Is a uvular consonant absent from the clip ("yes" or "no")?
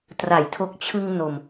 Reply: yes